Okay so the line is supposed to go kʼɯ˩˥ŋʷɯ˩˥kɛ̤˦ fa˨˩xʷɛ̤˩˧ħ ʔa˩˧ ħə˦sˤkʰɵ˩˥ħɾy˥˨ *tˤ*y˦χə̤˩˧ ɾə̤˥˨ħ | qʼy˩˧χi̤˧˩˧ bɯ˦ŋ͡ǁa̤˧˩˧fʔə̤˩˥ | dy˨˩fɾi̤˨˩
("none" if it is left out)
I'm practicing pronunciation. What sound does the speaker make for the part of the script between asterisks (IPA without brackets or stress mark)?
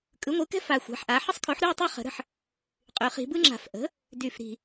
tˤ